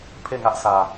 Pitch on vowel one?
falling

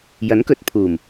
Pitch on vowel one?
rising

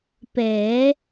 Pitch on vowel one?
rising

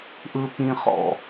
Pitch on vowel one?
low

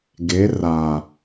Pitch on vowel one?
rising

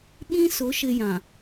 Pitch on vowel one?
high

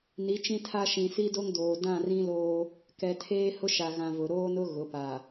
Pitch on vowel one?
rising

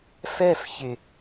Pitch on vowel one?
falling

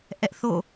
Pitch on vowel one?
high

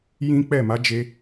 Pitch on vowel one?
high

